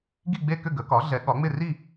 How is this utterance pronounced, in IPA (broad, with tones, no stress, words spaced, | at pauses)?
ɡi˥˨ɡ͡be˥˨kʏ˥˨ ɡə˩˥kɒ˩˥ ɮɛ˩˥ɠɒ˩˥ŋ͡mɪ˥˨ ri˥˨